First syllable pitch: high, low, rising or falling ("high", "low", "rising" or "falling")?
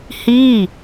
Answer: falling